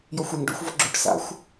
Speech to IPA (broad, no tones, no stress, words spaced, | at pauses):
jɔxʷɛŋ ɖo̰xʷ vɔɡ͡ǁuʈ sa̰xʷ